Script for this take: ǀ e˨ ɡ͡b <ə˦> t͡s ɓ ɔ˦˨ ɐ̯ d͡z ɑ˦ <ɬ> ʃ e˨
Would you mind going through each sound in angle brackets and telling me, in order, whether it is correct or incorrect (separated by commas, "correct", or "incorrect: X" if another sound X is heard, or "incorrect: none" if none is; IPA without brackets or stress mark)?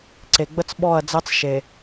correct, incorrect: t͡s